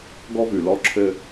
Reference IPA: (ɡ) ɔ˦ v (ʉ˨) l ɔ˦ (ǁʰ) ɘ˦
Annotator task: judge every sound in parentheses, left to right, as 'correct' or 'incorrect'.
correct, correct, correct

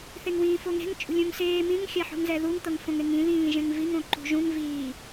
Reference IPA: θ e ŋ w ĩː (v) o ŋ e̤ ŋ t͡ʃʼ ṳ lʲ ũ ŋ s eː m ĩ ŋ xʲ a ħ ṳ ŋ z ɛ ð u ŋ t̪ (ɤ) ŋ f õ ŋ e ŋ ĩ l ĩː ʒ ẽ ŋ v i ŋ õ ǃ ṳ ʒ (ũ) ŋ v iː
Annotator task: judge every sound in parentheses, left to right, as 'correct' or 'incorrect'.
incorrect: f, correct, correct

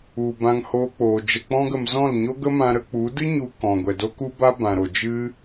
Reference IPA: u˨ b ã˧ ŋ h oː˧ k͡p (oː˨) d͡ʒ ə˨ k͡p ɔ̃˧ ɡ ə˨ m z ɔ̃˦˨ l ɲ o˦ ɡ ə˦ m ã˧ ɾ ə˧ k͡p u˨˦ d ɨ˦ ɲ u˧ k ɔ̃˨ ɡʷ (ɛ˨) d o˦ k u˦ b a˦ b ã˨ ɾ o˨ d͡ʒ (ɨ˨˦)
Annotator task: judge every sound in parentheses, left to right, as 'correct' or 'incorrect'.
correct, correct, incorrect: ɨ˦

